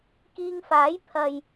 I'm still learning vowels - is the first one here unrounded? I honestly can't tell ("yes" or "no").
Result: yes